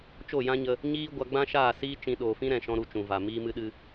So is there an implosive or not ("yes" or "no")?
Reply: yes